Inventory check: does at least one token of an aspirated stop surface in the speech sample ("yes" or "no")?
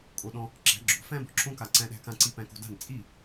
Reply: no